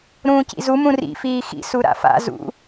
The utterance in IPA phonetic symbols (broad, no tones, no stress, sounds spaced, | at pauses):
ɾ ũː c ḭ z u m ũ r ḭ f iː x ḭ s u ɾ a̰ f a̰ z ṵ